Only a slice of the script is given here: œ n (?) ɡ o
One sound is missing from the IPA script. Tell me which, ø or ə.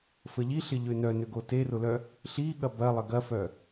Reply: ø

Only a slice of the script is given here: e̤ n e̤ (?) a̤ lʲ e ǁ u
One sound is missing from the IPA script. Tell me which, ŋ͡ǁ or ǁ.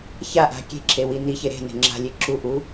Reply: ŋ͡ǁ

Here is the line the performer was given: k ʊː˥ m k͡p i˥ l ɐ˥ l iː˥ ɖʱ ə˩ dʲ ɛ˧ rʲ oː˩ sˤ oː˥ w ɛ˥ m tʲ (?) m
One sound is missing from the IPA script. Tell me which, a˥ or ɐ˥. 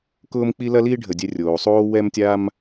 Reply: a˥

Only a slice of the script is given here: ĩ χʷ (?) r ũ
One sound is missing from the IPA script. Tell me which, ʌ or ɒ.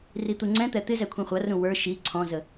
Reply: ʌ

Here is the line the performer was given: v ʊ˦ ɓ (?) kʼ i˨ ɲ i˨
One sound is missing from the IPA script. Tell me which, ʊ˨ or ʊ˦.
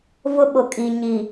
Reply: ʊ˨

